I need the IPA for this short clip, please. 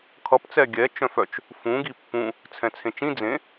kʰ ʌ p t͡s ɛ ɡʲ ɛ t͡ʃ œ̃ f œ t͡ʃ | f ũ ɡ i pː ũ | t͡sʰ ɛ̃ t͡sʰ ẽ t͡ʃ ĩ d͡z ẽ

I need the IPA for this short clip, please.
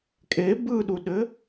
kʼ e b ɯ ɗ u ɗ ɘ

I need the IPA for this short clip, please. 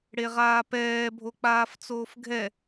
ɽ e ʁ aː p ɛː bʱ o k͡p aː f t͡s oː f ɡʱ ɛ

